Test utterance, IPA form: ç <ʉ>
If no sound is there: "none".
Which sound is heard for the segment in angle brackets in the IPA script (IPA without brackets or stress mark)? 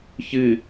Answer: ɨ